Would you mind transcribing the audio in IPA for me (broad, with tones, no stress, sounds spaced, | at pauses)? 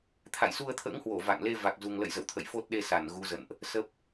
t̪ʰ a̰˧˨ j s u˧ ə̯ t̪ʰ ə̰ː˧˥ ŋ h w o˧˩ v a̰˧˨ ŋ l e˧ v a˨˩ k̚ z u˨˩ ŋ l ə̰˧˨ j z ə̰˧˨ w t̪ʰ ə̰˧˨ j f o˦˥ t̚ ɗ e˧ s a˧˩ n ɣ u˨˦ z ə̰˧˨ n ʔ | s ə˦˥ p̚